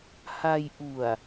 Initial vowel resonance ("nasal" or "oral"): oral